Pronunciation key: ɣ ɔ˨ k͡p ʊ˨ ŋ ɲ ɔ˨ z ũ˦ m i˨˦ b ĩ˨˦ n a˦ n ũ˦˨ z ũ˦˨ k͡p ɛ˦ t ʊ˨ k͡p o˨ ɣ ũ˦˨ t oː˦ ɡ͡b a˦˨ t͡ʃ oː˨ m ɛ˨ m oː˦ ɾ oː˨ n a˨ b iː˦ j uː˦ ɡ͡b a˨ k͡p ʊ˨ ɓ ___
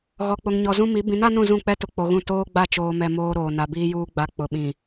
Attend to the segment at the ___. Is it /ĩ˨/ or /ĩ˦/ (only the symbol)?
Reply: ĩ˨